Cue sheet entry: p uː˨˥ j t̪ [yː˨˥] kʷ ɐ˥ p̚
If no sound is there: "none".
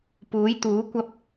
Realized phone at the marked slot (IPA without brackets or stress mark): uː˨˥